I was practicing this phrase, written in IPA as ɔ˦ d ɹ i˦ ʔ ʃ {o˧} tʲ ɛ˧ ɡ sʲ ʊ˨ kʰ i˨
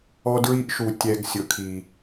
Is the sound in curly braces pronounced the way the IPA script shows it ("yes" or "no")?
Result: no